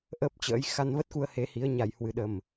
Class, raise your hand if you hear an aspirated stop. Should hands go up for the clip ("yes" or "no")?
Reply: no